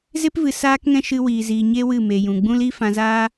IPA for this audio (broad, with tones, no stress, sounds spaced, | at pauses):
z e˦ p v ɨ˨ s aː˦ k ŋ ɛ̃˦ ʃ ɨ˧ w iː˨ z iː˨ ɲ e˦ w ɨ˦˨ m e˨ j ũ˨ ɡ͡b ũ˦ l iː˦ f ã˧ z aː˦